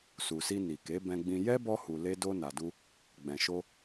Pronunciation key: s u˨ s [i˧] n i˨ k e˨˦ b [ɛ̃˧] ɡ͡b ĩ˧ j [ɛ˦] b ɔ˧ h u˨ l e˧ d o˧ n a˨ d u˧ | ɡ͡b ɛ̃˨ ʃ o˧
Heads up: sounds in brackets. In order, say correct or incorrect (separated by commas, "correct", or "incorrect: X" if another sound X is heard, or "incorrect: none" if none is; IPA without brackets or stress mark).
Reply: correct, correct, correct